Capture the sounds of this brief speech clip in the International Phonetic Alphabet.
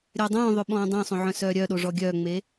ɾʲ œ dˤ œ̃ː ðˤ ø ɓ ɔ̃ː dˤ œ̃ sˤ õ ʕ œ̃ s œː ɾʲ œ ɗ o ʐ ɔ ɡʲ œː ŋ͡m e

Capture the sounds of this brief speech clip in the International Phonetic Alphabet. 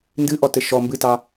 n d ɨ ʔ ɔ t ɘ ʃ ɔ m b ɨ t ɑ

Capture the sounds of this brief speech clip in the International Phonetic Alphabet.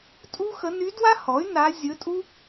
tʼ u˥ x ə˧˥ n y˧˥ d w a˥ h ɔ˩˥ y̯ n a˧˥ zʲ ɵ˧˥ tʼ u˥

